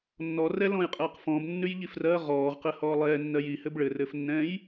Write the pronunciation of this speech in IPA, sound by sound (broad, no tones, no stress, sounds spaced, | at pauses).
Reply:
nː ɔ r ɛ l ɔ̃ j qʼ ɛː q f ɔ̃ b nː ʉ j ʎ i f r ɜ ʁ ɔː ʁ q ɘ h ɔː lˠ ɛː nː ɜ j i h ɘ b ɭ ɘ r ɘː f nː ɛ̃ː j